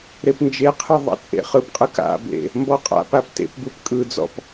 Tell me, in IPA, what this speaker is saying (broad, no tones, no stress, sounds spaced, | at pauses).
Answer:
ɾ e p n d͡ʒ e qʰ ɯ ðˤ a̰ t͡sʼ ḛ χ ɯ p qʼ ɯ k a̰ b ḛ | m b ɔ qʼ a̰ p a p t ḛ p b ɯ p kʼ ɯ d͡z ɔ̰ p